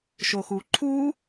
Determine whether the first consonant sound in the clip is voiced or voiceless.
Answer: voiceless